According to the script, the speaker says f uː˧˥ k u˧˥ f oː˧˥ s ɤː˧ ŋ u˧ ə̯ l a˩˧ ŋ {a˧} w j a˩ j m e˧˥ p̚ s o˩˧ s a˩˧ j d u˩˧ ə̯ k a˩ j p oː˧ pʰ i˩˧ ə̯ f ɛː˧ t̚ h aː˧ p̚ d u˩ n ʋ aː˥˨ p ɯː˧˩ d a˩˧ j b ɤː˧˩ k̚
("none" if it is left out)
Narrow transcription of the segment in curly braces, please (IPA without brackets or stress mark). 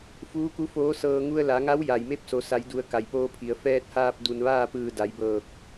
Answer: a˧˥